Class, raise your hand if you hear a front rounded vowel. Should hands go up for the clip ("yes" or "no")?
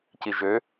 yes